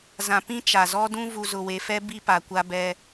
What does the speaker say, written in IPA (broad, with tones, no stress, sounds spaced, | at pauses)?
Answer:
z ã˨ p ĩ˦ t͡ʃ a˨ z ɔ˦ d ũ˦ v u˨ z ʊ˨ w e˨ f ɛ˦ b i˦ p a˨ kʷ a˦ b ɛ˦